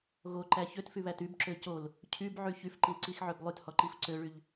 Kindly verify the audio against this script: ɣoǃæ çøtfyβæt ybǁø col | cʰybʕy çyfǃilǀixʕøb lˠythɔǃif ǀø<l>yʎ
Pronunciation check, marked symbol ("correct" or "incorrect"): incorrect